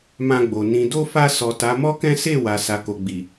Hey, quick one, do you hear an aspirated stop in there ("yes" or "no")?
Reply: no